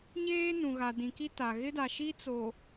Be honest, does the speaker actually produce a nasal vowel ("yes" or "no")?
yes